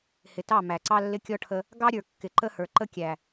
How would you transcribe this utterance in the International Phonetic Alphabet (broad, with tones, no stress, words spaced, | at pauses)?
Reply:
hɪ˨tɑ˦˨ mæ˨ǀɑ˦lːɪ˦ kʲɔ˦ʈʰə˦ | ɡɑ˦ɾʲə˞˨ kːɪ˨ǃə˦hə˞˨ǃə˦ kʲæ˨